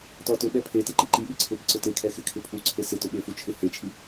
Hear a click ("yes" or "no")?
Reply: yes